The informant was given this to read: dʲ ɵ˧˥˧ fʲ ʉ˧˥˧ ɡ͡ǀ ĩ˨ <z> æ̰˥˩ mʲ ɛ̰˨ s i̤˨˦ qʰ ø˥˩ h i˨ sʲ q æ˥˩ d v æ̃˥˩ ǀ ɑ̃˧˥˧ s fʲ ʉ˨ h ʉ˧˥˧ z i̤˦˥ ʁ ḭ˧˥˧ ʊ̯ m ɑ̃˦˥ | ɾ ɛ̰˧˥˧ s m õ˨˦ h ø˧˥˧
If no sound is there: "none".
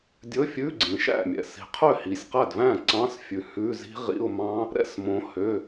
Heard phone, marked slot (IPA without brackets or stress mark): ʃ